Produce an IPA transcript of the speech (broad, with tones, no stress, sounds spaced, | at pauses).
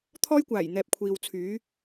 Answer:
t̪ʰ ɔː˥ j kʷ aː˨˩ j n̪ ɛː˨ p̚ kʷʰ iː˨ w t͡sʰ yː˨˥